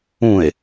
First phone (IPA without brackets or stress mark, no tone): ũ